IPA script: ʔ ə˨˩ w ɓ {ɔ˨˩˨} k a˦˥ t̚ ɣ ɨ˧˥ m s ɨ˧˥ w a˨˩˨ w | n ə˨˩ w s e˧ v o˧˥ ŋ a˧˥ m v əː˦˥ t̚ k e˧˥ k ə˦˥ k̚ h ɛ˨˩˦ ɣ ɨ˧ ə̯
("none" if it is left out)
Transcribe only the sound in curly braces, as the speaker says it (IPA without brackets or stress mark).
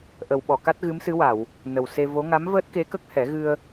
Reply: ɔ˨˩˨